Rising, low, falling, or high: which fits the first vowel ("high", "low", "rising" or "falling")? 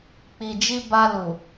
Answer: low